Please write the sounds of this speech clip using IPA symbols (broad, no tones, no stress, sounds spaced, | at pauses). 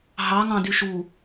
ɦ ɑ ŋ ɑ̃ d y ʃ u